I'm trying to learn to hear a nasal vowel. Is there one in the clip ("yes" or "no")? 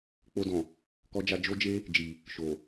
yes